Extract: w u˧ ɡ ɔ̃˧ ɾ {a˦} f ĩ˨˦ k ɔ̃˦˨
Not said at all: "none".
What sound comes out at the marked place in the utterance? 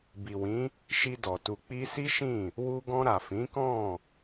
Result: a˨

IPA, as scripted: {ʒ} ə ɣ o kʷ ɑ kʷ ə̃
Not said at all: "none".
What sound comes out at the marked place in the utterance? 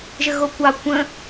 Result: ʒ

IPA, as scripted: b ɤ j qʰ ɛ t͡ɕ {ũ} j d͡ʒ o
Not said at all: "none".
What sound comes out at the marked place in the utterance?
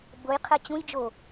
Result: ũ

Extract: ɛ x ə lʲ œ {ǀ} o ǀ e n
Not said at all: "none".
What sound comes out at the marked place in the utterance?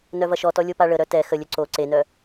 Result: ǀ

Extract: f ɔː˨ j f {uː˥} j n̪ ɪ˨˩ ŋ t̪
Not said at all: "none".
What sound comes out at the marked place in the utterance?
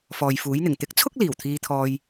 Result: uː˨˥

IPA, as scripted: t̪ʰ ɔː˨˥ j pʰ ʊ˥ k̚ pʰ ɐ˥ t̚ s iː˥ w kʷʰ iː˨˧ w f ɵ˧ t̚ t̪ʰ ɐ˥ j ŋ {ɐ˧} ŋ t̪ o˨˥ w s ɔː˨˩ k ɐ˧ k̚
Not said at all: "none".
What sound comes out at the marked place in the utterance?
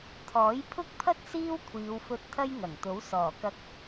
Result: ɐ˨˩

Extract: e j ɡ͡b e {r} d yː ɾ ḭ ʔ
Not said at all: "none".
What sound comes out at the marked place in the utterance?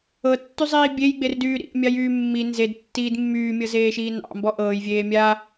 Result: r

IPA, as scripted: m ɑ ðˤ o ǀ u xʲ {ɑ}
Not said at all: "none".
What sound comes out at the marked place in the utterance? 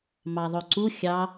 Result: ɑ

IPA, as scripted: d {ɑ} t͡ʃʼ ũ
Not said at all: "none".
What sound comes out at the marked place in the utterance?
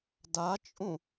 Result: a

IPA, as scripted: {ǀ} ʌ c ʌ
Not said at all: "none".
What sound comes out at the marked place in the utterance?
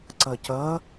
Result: ǀ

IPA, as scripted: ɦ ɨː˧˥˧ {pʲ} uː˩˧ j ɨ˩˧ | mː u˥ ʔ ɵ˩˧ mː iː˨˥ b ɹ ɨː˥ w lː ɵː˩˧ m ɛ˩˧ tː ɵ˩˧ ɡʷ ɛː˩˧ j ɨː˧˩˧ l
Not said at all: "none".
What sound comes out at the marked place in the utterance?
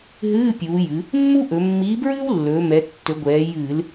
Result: pʲ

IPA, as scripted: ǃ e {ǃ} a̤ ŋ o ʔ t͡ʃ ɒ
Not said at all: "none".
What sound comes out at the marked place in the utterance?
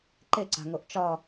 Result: ǀ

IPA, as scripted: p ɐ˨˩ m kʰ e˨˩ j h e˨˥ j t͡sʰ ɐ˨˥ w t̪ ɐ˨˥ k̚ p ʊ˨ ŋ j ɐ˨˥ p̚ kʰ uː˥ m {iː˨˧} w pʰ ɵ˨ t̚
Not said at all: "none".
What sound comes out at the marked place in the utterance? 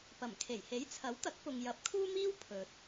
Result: iː˥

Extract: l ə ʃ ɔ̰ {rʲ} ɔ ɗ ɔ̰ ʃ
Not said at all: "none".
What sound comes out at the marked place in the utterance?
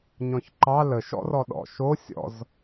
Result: r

